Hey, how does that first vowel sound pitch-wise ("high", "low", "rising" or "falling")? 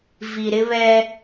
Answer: low